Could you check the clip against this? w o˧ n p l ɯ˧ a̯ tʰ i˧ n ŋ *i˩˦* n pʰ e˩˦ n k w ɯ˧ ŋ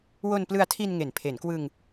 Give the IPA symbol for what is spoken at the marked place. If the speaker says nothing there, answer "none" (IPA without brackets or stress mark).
e˩˦